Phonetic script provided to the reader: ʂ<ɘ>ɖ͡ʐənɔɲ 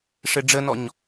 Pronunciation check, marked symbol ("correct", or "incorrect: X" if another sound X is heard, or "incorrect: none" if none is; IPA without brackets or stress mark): correct